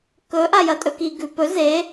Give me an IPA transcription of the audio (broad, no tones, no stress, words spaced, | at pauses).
kɵ ʔajɐtʼɵki ɡʉpɵ ze